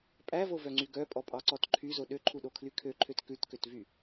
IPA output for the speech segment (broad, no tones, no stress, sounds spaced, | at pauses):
pʼ æ v o v œ ŋ͡ǀ y ɡ œ pʼ ɔ pʼ ɑ ǀ ɔ t ǃʰ y z o ɗ ø ǃʰ u ɗ o kʰ l y kʰ ø ǃʰ ø t k ʉ t k ø t v y